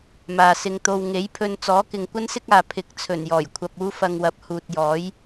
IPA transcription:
m aː˨ s ɪ˧ ŋ t̪ o˧ w ŋ e˨˥ j pʰ ɵ˧ n t͡s ɔː˨˥ k ɪ˨ ŋ kʷ ɐ˥ n s ɪ˥ k̚ aː˨ pʰ ɪ˨˥ k̚ t͡sʰ ɵ˨˩ n j ɔː˨˩ j kʷʰ ɐ˧ p̚ uː˥ f ɐ˧ ŋ w ɐ˨˥ p̚ h uː˨ t̚ j ɔː˨˥ j

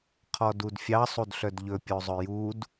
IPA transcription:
qʰ ɔ d u d fʲ ɑ sˤ u d ɬ œ d ʎ ɵ pʲ o zˤ ɵ j u d

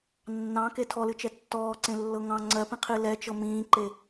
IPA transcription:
nː ɑ̃ k e tʰ ɔ l ɨ t͡ʃ ɛ tː ɔː ǀ ẽ lː ɤ ŋ ɑ̃ ŋ͡ǀ ɜ p ĩ qʰ ɨ l ɛ t͡ʃ ɤ m ĩː ǃ e

